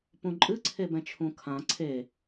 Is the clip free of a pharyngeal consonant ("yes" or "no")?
yes